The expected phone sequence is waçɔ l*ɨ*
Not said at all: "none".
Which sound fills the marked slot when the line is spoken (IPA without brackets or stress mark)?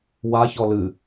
ɨ